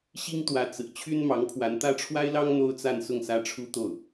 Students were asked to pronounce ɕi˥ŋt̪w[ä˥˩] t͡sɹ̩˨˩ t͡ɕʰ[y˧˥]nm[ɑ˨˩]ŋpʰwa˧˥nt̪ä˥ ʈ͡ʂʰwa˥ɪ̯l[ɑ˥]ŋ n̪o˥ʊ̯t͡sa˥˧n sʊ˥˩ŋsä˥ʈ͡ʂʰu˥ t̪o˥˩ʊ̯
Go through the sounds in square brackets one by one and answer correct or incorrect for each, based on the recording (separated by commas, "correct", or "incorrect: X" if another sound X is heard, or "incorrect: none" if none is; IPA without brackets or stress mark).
incorrect: ä˧˥, incorrect: y˥, incorrect: ɑ˧˥, correct